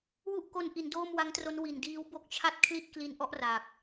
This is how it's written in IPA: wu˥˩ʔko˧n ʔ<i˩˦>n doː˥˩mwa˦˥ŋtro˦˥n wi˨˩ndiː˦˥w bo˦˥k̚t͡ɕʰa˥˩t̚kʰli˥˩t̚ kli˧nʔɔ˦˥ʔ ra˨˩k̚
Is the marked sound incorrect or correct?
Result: correct